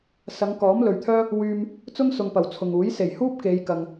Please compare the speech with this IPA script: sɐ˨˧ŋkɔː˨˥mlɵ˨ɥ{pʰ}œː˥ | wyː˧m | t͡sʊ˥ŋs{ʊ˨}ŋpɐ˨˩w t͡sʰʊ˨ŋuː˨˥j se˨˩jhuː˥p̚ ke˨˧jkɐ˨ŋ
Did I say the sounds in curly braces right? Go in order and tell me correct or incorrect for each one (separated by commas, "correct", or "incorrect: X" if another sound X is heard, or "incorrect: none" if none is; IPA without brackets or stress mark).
incorrect: t̪ʰ, correct